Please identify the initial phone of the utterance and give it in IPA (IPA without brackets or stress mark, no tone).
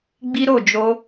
ɡ͡b